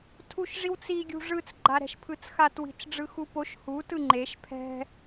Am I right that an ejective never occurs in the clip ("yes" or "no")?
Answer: yes